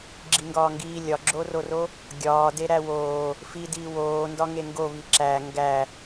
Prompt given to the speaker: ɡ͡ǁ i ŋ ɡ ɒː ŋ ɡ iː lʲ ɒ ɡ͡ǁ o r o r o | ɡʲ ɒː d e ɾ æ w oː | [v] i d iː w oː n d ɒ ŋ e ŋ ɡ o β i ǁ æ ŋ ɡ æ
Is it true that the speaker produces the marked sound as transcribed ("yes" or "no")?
no